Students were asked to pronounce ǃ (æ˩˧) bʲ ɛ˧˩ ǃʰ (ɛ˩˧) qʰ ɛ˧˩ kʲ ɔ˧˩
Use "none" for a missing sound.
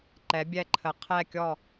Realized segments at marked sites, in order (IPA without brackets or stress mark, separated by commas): ɛ˩˧, ə˩˧